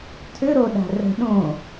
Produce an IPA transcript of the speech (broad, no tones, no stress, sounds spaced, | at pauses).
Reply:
tʰ ʏ ɾ o ɗ a̤ r ə̤ ɗ õ